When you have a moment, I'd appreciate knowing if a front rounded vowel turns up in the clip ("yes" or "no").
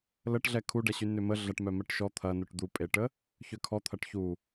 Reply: yes